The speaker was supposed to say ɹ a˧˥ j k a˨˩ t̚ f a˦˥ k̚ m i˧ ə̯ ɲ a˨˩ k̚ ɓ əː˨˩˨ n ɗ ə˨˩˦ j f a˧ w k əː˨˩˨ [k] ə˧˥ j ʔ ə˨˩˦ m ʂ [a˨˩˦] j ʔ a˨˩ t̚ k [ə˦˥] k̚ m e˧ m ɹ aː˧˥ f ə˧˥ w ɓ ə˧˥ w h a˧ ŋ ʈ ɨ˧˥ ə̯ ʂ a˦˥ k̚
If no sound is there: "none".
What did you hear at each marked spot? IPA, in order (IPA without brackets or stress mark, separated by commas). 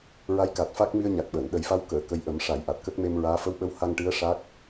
k, a˨˩˦, ə˦˥